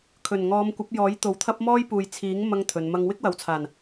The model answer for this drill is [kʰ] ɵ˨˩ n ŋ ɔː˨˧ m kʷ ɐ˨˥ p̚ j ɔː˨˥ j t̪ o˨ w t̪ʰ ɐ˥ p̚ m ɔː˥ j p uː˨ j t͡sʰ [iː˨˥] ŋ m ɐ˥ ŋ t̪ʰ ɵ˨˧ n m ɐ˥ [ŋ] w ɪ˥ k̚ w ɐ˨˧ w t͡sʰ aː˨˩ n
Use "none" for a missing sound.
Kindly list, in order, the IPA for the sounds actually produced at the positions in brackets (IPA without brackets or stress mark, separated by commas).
kʰ, iː˨˥, ŋ